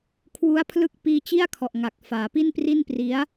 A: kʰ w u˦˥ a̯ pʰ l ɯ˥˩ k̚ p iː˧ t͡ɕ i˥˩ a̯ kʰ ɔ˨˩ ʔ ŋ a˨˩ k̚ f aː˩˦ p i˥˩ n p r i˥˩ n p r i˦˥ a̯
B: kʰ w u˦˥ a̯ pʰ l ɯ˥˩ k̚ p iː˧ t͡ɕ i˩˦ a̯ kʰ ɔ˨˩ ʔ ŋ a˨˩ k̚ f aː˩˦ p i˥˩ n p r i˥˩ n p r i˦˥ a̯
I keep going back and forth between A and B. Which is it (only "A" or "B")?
A